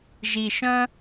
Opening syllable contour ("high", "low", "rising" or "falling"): low